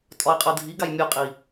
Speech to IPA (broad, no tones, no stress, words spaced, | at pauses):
tʼɒi̯qʼɤdʱiɡaj mʲɤqʼi